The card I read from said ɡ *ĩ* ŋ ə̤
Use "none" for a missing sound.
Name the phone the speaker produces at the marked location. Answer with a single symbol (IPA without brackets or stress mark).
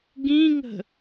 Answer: ĩ